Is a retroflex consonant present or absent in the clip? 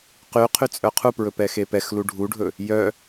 present